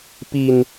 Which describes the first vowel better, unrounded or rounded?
unrounded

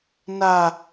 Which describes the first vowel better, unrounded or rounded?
unrounded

